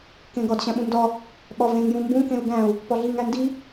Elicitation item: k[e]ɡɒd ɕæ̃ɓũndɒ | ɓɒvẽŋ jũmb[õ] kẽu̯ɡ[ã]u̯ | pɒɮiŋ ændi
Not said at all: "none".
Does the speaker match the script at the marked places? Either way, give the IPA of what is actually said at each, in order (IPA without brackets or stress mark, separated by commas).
ẽ, ũ, æ̃